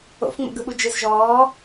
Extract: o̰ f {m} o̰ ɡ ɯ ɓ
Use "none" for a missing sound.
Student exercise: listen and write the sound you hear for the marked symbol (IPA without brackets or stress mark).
ŋ͡m